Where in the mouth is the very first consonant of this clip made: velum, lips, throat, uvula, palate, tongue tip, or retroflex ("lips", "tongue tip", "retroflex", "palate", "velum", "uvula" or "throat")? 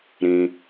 tongue tip